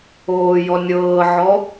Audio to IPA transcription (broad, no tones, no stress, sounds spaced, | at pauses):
oː j ɔ nʲ ɤː ʕ ɔ